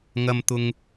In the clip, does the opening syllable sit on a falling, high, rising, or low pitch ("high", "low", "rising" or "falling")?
low